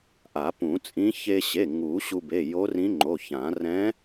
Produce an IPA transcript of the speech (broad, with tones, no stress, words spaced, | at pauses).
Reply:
ʔa˨˩˦pũ˨˩˦t͡sʼĩ˧˥ çe˧ɕe˩˧˩ ŋu˨˩˦ɕu˧be˩˧˩ jo˧˥rĩ˧˥ŋ͡ǃo˩˧˩çã˨˩˦ rɛ̃˧˥